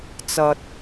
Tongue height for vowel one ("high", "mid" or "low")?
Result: low